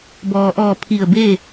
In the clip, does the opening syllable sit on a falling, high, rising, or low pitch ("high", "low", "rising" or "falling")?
low